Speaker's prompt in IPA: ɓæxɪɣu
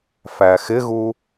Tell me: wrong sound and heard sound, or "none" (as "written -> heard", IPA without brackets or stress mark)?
ɓ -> f